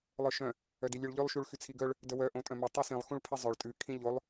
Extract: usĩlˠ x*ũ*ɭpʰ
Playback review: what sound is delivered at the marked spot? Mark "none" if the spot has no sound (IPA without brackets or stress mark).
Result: ũ